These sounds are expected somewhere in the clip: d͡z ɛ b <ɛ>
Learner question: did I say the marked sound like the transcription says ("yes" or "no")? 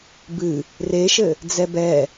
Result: yes